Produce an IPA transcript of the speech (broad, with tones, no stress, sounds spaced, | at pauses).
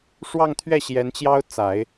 ʂ w ɑ˥˧ ŋ t̪ʰ ɥ ɛ˥˩ ɕ j ɛ˧˥ n t͡ɕ j ɑ˥ ʊ̯ t͡s a˨˩˦ ɪ̯